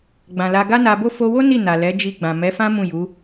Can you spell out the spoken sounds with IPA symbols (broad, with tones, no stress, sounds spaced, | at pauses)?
ɡ͡b ã˨ l a˧ ɡ a˦ n a˧ b o˦ f o˧ w o˦ n i˦˨ n a˨ l ɛ˨˦ d͡ʒ i˧ ɡ͡b ã˨ m ɛ˨˦ f ã˦ m ũ˦˨ j u˨˦